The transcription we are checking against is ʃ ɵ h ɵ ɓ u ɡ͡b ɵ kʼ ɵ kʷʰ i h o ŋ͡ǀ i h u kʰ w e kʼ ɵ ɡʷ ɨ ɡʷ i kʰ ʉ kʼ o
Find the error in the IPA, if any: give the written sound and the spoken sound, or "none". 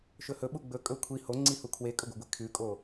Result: none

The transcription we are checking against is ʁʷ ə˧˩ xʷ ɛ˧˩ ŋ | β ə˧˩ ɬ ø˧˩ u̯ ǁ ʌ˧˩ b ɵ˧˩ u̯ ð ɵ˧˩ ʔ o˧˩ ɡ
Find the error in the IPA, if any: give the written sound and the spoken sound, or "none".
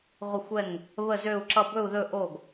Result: ɬ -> z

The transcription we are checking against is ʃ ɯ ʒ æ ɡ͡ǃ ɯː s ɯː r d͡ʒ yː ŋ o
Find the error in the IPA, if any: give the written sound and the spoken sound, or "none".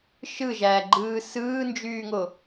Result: r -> n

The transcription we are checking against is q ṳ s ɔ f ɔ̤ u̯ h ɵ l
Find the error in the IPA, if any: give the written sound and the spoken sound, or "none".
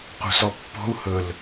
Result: f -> pː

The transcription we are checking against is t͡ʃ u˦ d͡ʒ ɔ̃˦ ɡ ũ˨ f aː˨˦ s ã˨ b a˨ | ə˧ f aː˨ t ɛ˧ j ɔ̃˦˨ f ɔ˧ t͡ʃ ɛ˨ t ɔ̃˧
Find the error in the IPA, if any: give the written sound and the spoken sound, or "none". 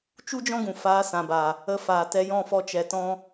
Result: none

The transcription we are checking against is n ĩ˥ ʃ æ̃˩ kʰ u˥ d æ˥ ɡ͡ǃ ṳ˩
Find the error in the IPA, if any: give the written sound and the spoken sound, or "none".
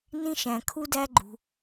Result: none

